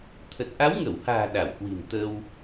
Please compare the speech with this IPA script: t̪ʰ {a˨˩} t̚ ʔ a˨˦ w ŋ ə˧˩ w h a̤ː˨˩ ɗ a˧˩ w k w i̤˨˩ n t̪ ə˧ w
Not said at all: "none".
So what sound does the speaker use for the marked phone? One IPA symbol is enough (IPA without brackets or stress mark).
ə˨˩